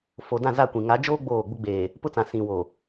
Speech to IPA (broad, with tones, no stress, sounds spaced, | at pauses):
f o˨ d ã˦˨ z a˦˨ kʷ ĩ˨ ŋ a˨˦ d͡ʒ oː˦ ɡ͡b oː˦˨ ɡ͡b ʊ˦ ɡ͡b eː˨ | p ʊ˦ t͡s ã˨ s ĩ˨ w o˨